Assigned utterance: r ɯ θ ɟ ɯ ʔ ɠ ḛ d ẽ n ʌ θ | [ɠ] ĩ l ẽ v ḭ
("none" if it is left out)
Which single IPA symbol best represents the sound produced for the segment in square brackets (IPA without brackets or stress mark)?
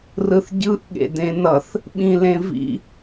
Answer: ɓ